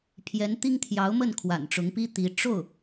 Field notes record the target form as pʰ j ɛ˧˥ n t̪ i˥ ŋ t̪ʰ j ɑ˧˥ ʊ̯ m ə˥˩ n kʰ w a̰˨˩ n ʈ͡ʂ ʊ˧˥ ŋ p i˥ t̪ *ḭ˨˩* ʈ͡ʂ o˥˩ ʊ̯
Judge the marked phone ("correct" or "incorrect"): incorrect